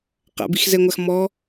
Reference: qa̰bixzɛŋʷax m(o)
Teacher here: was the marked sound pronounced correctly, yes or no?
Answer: no